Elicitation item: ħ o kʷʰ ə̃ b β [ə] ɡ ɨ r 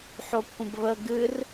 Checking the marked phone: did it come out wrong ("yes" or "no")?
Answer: no